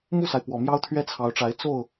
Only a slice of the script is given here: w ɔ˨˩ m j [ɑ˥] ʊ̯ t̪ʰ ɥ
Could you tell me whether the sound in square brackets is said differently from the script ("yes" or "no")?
no